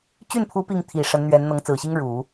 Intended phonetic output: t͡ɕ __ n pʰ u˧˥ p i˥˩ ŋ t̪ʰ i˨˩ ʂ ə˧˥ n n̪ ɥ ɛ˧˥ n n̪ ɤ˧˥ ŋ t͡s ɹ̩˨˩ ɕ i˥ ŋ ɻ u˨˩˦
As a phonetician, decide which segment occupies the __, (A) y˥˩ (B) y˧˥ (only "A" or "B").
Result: A